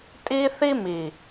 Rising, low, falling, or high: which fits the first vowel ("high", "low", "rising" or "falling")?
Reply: high